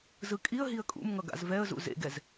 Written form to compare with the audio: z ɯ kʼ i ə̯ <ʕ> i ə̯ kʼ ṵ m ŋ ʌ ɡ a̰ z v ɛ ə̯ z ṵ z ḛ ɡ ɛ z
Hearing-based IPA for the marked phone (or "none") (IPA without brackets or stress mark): ɦ